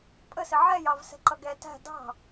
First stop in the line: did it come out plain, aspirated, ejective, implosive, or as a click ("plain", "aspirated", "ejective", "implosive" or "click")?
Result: ejective